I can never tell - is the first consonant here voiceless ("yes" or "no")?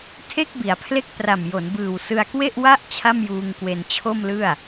yes